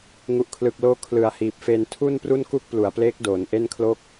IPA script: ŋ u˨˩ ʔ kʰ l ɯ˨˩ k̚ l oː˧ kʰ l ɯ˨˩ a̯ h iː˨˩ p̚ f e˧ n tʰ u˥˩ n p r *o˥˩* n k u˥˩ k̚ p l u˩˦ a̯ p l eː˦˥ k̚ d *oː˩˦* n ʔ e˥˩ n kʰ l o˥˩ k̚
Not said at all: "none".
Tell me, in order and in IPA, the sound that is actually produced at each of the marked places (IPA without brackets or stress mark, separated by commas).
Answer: u˥˩, oː˩˦